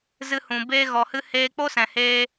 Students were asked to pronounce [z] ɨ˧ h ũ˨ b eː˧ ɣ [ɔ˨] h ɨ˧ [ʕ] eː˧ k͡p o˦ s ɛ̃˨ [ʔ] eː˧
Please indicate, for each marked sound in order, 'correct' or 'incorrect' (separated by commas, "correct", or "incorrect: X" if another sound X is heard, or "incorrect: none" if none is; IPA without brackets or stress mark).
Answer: correct, correct, incorrect: h, incorrect: h